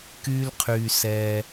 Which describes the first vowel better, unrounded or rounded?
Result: rounded